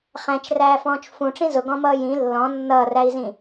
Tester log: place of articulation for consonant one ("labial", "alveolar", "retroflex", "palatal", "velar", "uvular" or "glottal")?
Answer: uvular